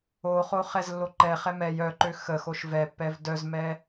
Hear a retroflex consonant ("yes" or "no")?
no